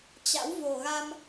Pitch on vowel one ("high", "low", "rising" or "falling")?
rising